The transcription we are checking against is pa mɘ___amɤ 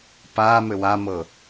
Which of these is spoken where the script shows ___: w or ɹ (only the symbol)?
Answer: w